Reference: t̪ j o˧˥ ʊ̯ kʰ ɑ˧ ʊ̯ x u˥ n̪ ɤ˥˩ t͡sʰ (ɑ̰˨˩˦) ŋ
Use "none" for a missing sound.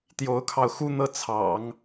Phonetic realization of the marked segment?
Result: ɑ̰˨˩˦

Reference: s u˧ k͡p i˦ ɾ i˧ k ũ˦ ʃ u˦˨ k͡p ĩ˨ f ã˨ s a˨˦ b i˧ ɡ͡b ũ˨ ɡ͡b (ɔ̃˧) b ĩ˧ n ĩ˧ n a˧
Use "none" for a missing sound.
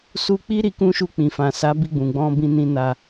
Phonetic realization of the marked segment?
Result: ɔ̃˧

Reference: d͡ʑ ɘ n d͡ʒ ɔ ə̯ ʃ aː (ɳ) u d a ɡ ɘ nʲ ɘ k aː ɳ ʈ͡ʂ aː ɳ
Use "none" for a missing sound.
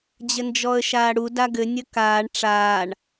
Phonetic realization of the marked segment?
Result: ɽ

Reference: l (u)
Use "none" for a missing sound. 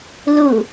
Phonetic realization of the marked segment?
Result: u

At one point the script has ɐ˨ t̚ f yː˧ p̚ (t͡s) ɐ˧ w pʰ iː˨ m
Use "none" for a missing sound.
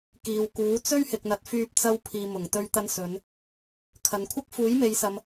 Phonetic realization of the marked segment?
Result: t͡s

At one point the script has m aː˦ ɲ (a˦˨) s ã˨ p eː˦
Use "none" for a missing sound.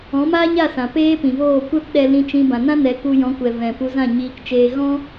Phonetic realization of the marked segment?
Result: a˦˨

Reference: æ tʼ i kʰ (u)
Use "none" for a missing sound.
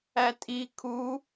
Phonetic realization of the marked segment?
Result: u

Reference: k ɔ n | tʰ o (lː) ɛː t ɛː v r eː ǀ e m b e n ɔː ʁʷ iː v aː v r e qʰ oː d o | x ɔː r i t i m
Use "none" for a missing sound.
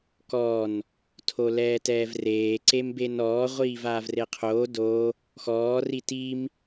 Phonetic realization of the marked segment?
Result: l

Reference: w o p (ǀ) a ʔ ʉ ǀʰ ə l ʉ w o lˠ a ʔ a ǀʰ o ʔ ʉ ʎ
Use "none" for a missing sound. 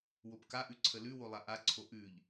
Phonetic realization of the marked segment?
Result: k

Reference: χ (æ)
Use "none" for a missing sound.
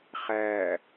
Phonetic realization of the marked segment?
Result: æ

